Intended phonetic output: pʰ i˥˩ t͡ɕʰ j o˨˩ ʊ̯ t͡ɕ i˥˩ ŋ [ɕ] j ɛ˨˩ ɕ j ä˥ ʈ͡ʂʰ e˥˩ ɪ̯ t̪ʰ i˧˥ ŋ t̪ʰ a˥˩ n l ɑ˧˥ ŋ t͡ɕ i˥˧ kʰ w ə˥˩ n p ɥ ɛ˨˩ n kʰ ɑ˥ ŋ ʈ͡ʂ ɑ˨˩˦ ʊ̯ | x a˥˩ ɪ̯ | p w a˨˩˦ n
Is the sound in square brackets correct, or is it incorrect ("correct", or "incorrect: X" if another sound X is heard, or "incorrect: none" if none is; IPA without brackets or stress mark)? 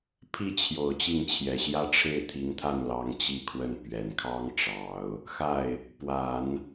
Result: incorrect: t͡ɕʰ